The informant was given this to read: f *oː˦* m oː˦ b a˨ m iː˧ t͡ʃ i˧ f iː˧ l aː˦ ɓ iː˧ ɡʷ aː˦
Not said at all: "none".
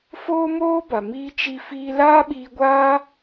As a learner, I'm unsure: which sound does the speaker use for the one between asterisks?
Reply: oː˦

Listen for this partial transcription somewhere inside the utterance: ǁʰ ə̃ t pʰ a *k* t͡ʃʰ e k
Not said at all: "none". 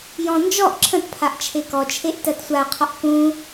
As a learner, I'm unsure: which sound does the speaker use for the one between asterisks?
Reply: ʔ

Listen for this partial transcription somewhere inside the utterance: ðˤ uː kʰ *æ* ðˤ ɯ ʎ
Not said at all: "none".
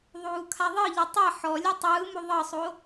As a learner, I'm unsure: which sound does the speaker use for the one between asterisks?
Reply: a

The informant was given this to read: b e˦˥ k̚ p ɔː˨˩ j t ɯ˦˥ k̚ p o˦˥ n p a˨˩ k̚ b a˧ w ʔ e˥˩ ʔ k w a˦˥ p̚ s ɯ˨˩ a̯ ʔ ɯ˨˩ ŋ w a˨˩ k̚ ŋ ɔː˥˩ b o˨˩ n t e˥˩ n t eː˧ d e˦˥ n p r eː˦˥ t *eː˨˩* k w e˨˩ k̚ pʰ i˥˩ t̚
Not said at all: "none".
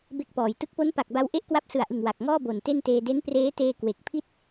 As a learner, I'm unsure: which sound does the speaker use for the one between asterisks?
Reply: eː˧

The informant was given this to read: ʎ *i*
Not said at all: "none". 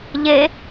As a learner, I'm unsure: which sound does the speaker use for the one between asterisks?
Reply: e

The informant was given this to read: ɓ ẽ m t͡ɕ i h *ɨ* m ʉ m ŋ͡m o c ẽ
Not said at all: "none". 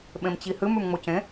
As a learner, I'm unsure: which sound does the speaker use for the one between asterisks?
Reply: ɨ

